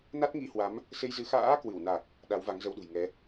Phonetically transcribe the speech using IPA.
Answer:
na˦˥t̚ŋi˧hwa˨˦m | se˧jzɨ˨˦ xa̰ː˧˥ kwɨ˧˩wna˨˩k̚ | ɗa˨˦wva˨˦ŋzə˧wɗṳ˨˩j ŋɛ˨˦

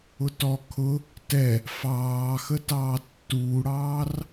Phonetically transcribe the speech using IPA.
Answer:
ʊtɔ kʰʊ | tɛ | fɑːxətɑː tːuːɽɑːr

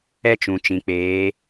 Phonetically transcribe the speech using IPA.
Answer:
ɛ˦t͡ʃũ˨ t͡ʃĩ˨k͡peː˨˦

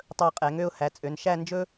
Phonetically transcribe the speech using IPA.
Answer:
tˤɵ˧ə̯qʼɛ˩˧ŋø˥˧ʊ̯ hæ˩˧t͡sʼø˩˧n ʃæ˥˧nd͡ʒɵ˥

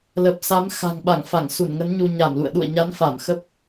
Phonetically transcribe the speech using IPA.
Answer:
lə˨˩p̚sa˨˦m xa̤˨˩ŋɓa˧˩ŋ fa˧˩ŋsu˧˩nŋə˨˦n ɲu˧ ɲa˧˩mlṵ˧˨ə̯ ɗṵ˧˨ə̯ɲa˨˦nfa˧˩m xə˦˥p̚

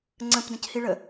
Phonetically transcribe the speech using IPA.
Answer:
ŋ͡ǀə̃pdə̃chiɭə

